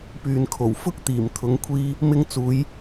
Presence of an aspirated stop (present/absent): present